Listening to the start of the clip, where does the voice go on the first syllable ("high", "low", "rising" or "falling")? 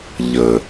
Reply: low